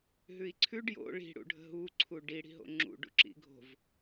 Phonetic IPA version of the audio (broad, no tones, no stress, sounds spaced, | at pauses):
ɦ ʉ i̯ ǀʰ ʉ ɖ j o̰ ɭ i̤ ɽ ṵ ɖʱ ə̤ ɦ u ǀʰ u ɖ i ɽ i̤ ɦ o̰ ŋ͡ǁ ṵ ɖ ṵ ǁ ḭ ɡʱ o̤ v